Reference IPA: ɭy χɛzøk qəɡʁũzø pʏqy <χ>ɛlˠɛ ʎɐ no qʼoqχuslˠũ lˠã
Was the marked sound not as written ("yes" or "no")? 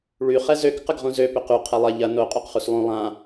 yes